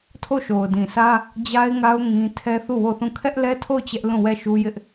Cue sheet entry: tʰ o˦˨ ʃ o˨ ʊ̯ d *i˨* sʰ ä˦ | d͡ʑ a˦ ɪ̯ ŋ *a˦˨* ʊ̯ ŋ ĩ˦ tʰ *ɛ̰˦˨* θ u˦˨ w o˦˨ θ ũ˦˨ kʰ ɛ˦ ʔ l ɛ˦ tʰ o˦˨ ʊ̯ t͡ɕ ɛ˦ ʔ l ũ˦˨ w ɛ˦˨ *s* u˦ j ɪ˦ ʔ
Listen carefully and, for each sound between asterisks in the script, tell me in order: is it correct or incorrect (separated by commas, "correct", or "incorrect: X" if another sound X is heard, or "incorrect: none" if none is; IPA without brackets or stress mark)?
incorrect: ĩ˨, incorrect: a˦, incorrect: ɛ˦, incorrect: ʃ